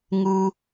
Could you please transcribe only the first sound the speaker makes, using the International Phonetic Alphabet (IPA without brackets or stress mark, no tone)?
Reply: ŋ